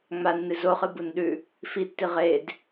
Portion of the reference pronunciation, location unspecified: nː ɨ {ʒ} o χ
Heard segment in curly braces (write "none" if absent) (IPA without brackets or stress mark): z